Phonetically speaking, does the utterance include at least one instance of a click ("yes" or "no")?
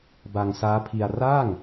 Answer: no